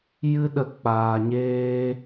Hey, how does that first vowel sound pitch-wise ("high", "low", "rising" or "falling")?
high